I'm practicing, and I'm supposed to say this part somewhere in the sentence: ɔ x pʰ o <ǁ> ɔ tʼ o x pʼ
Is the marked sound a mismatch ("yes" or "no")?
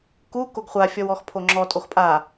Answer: yes